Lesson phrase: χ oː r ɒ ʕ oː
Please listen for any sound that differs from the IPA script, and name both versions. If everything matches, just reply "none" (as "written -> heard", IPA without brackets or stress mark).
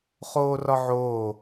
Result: none